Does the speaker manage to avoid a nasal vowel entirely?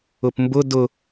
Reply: yes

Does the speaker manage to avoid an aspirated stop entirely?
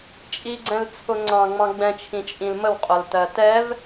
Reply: no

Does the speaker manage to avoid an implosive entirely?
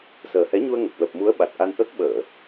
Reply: no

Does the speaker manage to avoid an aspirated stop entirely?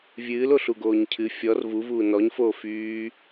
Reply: no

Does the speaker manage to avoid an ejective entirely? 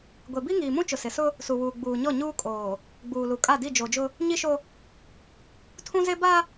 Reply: no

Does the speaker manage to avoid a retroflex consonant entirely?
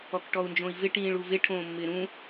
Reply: no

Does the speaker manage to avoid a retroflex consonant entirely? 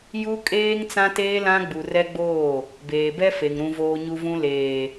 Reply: yes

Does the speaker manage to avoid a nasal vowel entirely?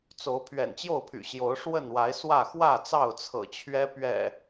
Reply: yes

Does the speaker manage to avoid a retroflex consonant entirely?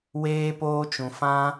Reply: yes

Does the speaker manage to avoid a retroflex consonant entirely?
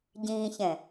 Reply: yes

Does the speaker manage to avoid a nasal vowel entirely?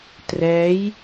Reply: yes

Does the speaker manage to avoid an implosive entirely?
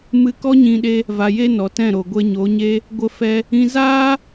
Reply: no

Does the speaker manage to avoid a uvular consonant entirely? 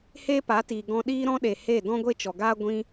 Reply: yes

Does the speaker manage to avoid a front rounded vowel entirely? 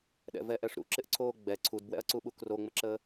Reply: yes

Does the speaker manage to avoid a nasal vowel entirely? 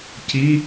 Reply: yes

